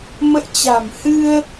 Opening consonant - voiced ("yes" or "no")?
yes